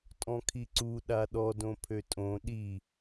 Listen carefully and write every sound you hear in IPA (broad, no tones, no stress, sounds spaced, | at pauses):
tʼ ɔ̃ kʰ i ǀ u ɗ a ɗ ɔ d õ pʰ ø tʼ õ ɗ i